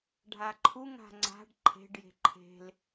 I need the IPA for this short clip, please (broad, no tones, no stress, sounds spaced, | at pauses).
ɖʱ a ǃʰ u ŋ a̤ ŋ͡ǀ a̤ ɖ ǃʰ e̤ ɖ j e̤ ǃʰ e̤ l